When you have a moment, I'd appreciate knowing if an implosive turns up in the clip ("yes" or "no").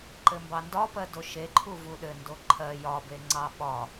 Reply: yes